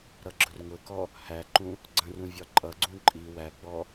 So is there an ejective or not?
yes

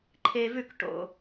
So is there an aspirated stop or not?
yes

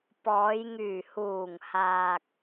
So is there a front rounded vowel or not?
yes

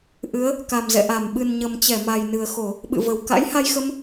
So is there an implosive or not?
yes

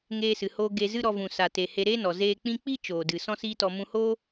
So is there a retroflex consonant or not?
no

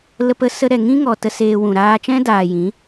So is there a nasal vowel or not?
yes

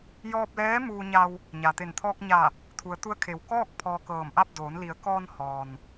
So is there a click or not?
no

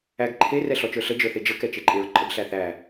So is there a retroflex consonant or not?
no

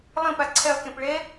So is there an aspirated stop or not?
yes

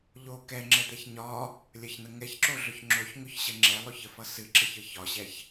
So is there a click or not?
yes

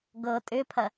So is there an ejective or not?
yes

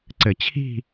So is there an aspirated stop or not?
yes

